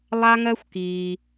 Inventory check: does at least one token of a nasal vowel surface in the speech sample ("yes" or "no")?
no